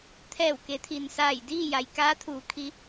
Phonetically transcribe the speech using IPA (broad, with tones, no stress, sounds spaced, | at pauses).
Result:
t̪ʰ ɛː˧˩ w k e˩˧ t̪ʰ i˩ n s aː˧˩ j d iː˥˨ j a˩ j k aː˧˥ t̪ʰ uː˩˧ kʰ i˧˥